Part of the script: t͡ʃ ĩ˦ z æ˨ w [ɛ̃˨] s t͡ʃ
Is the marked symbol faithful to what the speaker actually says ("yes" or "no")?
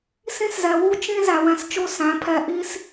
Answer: yes